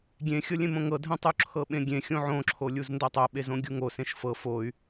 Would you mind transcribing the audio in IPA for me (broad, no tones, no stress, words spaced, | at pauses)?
ɡʲẽxʲɤlʲẽmõ ŋɤdʱɛ̃tˤu ǁʰɤɓẽɡʲẽ xʲõʕõǁʰolʲuz ndɤtˤoɓezõ ɡʲuŋosẽʃ fɤ foy̯